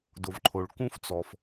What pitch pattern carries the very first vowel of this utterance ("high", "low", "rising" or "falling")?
low